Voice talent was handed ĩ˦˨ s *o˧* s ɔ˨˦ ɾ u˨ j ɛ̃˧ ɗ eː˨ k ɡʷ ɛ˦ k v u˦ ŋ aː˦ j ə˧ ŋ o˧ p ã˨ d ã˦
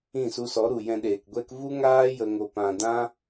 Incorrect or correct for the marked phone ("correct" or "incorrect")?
incorrect